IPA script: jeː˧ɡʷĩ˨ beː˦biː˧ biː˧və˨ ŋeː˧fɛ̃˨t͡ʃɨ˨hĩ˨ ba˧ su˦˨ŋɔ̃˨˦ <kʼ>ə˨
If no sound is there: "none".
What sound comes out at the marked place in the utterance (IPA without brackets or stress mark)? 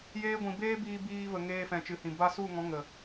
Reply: ŋ